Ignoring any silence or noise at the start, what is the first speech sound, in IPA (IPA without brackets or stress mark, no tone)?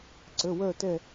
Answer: ǀ